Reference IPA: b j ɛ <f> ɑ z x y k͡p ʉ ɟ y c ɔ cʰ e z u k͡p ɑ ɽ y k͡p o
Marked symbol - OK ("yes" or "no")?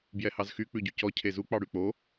no